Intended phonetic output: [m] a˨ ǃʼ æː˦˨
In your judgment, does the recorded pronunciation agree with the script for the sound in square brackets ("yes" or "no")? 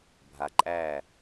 no